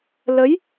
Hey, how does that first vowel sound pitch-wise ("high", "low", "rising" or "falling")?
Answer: rising